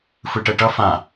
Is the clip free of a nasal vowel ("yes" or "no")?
no